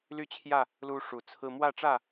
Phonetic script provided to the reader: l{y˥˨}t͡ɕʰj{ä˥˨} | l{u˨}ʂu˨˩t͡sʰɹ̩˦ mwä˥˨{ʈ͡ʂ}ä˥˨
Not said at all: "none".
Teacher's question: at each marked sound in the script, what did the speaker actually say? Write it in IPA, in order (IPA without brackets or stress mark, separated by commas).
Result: y˥˨, ä˥˨, u˦, ʈ͡ʂ